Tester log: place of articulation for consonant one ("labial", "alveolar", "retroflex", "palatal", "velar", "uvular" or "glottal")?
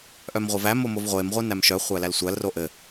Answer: glottal